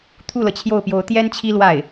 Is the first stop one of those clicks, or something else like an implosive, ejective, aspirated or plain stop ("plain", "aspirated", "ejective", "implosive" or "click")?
aspirated